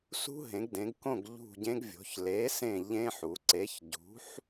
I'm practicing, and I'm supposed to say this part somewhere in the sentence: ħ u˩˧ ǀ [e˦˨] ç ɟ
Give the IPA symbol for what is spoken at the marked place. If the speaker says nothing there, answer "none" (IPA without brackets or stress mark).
e˨˥